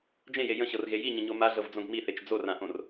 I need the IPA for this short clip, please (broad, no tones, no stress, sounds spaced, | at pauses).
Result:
d͡ʒ ẽ j e j ə̃ ɕ ɤ r ɣ e j i ɲ ə̃ ɲ o m a ɮ ɤ v d͡z õ ɡ m i θ e t͡ʃ d͡z o r ã ʔ õ r